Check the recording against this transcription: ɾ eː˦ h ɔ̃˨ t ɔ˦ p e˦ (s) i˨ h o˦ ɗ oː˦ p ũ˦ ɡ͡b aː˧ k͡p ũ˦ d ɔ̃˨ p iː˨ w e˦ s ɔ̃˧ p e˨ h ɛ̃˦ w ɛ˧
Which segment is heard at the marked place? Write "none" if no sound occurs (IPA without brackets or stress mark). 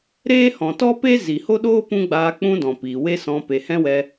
z